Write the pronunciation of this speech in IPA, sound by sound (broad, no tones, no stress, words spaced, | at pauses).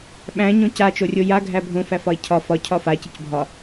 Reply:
ɓæ̃ɲõ cat͡ʃorʲo jaɡʱæ bʱõfæfɒe̯ cʰɒ fɒcʰɒ facɨc bʱɒ